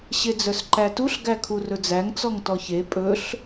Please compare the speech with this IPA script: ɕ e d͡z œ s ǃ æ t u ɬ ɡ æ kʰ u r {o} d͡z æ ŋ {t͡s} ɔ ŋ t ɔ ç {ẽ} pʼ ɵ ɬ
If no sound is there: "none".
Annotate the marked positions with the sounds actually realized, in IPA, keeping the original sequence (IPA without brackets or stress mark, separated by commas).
ɵ, t͡s, e